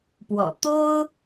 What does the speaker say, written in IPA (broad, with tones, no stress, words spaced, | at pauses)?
pwɔ̰˨˩ t̪o˥ʊ̯